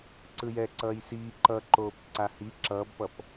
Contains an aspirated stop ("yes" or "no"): no